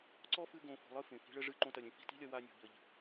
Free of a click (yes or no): no